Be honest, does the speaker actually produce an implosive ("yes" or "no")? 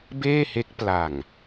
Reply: no